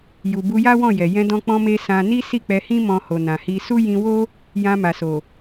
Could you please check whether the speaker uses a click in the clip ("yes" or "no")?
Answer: no